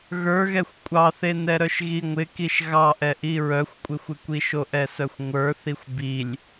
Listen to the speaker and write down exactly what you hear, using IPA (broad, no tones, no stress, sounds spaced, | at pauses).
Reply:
ɣ ə˞ ɣ ɛ xʷ kʷʼ ɑ θ e n ɛ ɾ œ ʃ ɣ i ŋʷ ɪ k i ʃ ɣ ɑ ʔ ɛ ʔ i ɹ œ xʷ kʷʼ ɪ xʷ ɪ kʷ i ʃ o ʔ ɛ s œ xʷ ŋʷ ə˞ θ i xʷ b i lʲ